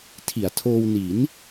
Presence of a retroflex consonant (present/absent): absent